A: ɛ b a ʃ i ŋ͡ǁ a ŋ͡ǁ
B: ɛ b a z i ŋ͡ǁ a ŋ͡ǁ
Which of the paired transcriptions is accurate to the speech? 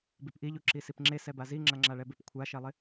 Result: B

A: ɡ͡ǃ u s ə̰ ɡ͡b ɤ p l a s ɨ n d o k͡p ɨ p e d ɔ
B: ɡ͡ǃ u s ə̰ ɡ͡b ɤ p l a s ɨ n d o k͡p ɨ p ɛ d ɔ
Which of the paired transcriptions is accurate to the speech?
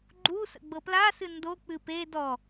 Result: A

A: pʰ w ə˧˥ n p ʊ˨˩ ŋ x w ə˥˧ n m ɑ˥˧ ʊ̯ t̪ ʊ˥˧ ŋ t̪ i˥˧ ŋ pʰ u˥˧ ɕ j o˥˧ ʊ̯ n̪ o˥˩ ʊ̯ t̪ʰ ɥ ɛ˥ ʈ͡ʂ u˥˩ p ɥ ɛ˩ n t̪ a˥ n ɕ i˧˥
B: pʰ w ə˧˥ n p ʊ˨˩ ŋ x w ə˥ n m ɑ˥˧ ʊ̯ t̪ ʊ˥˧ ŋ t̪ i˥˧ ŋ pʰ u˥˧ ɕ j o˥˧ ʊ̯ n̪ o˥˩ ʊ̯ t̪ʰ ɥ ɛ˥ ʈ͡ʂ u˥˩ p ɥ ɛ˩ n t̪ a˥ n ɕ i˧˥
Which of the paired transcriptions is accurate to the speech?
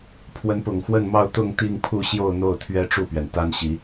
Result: A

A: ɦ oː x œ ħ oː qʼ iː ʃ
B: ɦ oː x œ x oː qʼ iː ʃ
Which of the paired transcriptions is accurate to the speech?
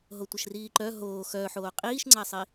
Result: A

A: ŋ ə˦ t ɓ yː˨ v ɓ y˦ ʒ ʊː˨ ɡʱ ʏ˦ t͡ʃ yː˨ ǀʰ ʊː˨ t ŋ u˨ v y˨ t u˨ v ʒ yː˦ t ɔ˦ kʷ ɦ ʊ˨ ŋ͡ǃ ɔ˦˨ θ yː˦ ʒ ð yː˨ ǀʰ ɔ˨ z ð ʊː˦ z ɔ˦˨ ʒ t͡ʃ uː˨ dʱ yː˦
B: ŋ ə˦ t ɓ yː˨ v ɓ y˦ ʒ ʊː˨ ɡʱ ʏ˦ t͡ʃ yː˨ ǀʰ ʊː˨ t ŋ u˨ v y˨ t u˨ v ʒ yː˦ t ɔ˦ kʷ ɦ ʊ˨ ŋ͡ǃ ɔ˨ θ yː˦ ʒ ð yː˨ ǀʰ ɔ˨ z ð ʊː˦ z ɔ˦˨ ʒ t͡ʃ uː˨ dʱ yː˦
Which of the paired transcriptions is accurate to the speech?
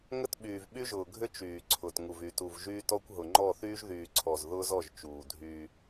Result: A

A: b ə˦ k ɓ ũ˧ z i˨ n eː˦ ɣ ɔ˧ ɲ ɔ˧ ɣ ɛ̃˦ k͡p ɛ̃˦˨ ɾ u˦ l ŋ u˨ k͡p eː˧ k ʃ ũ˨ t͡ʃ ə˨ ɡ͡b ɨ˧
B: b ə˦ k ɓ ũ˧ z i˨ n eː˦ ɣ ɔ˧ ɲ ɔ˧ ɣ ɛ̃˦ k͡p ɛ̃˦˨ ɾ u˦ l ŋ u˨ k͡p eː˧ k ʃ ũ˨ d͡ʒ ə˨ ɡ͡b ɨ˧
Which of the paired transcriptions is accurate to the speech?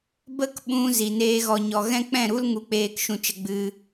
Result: A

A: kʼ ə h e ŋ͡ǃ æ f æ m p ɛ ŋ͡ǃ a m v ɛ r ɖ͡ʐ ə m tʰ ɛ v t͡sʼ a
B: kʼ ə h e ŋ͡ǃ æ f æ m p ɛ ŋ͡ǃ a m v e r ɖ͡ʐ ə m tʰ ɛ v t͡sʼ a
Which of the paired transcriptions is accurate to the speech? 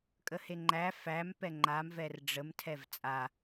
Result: A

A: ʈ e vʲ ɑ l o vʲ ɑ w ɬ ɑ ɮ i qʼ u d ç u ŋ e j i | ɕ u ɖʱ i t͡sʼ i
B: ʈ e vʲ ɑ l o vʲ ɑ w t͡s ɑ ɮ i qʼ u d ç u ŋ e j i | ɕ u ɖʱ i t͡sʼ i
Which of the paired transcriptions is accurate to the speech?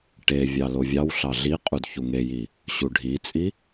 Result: A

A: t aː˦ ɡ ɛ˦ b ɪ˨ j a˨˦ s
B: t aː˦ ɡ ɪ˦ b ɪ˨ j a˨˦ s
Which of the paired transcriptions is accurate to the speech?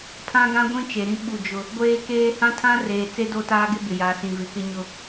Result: B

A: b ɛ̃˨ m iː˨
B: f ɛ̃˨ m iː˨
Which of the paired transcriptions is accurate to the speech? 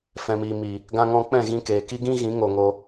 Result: B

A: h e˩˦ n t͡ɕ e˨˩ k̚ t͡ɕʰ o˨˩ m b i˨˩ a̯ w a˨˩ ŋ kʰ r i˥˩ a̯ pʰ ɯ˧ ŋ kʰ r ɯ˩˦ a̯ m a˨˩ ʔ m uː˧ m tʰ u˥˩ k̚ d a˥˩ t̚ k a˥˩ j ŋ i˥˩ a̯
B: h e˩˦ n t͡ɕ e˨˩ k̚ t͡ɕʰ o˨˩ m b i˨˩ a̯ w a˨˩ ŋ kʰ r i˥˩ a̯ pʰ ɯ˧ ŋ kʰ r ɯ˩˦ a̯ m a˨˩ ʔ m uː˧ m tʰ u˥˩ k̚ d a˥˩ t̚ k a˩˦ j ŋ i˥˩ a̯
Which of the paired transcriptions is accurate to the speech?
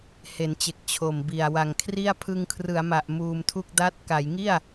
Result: B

